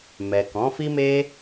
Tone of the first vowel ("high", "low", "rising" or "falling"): low